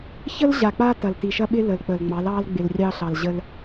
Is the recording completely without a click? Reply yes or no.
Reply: yes